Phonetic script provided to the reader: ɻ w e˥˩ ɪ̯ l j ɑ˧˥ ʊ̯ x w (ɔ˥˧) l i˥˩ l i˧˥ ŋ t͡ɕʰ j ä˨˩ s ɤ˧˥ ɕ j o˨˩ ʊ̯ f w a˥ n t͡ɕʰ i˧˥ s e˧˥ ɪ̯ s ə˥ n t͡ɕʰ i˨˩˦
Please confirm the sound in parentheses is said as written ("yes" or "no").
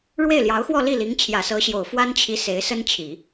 yes